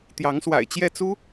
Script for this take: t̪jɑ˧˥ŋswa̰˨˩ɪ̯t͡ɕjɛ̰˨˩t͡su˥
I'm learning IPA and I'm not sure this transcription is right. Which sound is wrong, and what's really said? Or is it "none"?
ɛ̰˨˩ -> ɛ˥˩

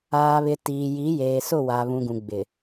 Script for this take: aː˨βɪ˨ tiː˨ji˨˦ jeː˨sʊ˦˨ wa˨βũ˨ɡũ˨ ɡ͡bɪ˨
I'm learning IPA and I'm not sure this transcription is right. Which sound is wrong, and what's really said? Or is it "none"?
none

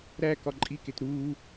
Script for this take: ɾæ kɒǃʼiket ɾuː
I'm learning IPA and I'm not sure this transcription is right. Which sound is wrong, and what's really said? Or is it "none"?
none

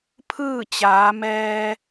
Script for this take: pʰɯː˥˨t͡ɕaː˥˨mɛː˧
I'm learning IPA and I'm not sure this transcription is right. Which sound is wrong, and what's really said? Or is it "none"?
aː˥˨ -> aː˩˧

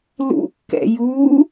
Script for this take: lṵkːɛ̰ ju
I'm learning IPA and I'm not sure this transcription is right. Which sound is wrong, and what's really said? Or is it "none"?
none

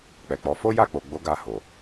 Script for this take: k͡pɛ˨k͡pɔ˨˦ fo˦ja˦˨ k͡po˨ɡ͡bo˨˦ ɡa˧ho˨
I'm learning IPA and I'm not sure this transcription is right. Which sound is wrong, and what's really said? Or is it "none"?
none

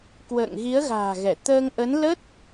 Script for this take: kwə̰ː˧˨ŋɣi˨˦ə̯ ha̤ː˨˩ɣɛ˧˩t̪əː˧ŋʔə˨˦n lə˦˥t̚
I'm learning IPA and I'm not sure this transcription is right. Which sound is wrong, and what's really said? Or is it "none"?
h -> ɣ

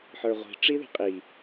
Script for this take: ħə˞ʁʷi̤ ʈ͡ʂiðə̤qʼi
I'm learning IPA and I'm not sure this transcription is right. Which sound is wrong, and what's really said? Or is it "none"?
none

